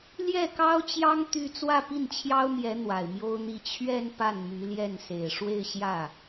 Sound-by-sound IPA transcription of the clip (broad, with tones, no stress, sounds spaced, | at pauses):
l j ɛ˥˩ k ɑ˥ ʊ̯ t͡ɕ j ɑ˥ ŋ t̪ y˥˧ t͡s w ä˥˧ p i˥˩ n t͡ɕʰ j ɑ˥ ʊ̯ m j ɛ˧˥ n̪ w a˨˩ ɪ̯ m j o˥ ʊ̯ n̪ i˥˧ t͡ɕʰ ɥ ɛ˥˧ n p a˥˩ n m y˧˥ l j ɛ˥˩ n s e˨˩ ɪ̯ ʂ w e˥˧ ɪ̯ ɕ j ä˥˩